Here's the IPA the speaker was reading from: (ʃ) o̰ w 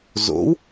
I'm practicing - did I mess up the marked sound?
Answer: yes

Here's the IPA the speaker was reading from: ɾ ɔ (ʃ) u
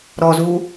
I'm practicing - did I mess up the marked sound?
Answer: yes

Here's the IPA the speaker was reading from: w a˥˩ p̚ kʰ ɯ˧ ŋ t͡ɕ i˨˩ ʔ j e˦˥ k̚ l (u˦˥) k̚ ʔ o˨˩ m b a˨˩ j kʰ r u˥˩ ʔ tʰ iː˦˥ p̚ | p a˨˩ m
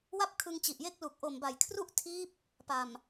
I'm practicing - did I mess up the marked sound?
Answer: yes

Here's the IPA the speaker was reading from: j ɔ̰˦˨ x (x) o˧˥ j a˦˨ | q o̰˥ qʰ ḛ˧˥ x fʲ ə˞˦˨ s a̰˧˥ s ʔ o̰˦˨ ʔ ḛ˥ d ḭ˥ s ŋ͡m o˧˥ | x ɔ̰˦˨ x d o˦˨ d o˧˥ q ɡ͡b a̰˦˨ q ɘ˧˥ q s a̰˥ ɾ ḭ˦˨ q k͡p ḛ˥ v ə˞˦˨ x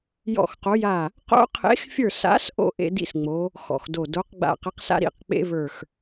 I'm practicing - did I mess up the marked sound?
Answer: yes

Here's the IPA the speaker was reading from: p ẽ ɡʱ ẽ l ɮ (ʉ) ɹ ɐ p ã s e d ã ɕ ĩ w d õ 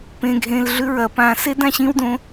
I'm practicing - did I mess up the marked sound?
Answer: no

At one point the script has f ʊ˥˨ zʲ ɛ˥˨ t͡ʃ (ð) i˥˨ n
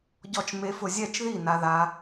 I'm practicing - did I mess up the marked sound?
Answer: no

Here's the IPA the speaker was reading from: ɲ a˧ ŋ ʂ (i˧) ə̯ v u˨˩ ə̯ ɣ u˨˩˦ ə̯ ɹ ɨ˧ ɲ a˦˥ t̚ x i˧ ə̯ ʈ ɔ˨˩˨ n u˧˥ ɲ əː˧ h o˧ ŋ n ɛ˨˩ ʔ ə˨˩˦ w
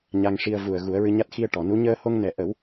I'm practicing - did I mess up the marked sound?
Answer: no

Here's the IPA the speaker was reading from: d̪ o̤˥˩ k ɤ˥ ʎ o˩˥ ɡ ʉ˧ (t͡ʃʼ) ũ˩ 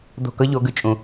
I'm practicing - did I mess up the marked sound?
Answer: no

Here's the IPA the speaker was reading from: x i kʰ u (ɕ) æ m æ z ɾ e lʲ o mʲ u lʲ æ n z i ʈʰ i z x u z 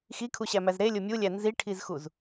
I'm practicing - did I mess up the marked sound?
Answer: no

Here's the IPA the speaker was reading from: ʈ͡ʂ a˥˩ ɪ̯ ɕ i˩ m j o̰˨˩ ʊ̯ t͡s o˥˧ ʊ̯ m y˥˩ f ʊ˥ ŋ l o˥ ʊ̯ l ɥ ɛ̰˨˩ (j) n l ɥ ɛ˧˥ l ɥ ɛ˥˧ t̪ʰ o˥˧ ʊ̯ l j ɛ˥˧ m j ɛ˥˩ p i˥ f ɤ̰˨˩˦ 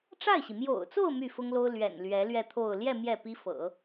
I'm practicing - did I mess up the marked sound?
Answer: yes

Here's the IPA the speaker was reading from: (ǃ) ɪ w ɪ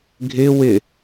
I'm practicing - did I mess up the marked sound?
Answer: yes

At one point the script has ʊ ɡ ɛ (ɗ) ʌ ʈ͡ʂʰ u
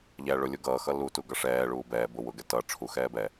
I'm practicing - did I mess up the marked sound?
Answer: yes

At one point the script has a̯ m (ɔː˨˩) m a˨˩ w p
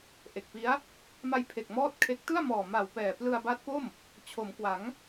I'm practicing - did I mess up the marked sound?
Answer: no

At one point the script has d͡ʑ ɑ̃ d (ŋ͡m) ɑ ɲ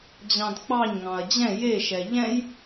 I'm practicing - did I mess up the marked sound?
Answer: yes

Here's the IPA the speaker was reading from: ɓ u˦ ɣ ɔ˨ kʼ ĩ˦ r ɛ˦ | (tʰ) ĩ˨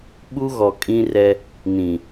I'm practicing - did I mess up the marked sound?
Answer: yes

